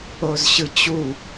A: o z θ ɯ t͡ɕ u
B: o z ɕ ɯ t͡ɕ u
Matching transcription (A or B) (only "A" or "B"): B